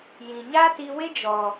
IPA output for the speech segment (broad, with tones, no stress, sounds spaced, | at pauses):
j ĩ˨ ɲ a˦ t i˧ w e˦ d͡ʒ ɔ˨